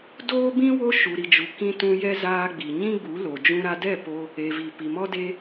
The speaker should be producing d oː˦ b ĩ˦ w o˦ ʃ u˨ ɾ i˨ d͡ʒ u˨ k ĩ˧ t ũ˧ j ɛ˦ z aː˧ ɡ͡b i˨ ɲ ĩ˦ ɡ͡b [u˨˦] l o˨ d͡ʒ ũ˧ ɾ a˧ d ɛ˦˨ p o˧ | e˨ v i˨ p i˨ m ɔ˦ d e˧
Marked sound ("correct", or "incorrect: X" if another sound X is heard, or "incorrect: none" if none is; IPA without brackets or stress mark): correct